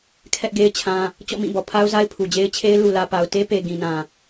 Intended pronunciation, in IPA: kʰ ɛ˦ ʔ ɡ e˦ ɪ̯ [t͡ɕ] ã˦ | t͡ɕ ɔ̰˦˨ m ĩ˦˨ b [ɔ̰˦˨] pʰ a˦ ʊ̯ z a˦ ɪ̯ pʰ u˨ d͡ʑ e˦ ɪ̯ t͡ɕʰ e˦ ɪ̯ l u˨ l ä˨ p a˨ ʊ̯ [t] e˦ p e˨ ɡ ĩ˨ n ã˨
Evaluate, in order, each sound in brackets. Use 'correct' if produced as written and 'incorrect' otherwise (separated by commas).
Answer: incorrect, incorrect, correct